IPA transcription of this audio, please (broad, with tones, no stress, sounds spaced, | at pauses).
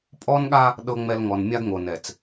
pʼ ɔ˦ n ɠ a˦ | ɗ ɤ˨ ŋ͡m ɛ˨ l ŋ ɔ˨ n mʲ a˦ ɡ ŋ o˨ n ɛ˨ t͡s